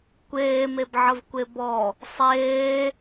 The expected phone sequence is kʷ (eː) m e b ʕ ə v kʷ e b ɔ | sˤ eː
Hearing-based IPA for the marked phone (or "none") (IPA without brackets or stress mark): eː